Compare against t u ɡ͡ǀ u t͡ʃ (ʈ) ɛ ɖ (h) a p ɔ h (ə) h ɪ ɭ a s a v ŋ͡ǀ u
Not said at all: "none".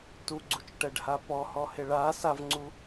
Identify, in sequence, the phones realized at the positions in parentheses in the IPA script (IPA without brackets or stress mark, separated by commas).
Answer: ʈ, h, ɔ